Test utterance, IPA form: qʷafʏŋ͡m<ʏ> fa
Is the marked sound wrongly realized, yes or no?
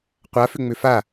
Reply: no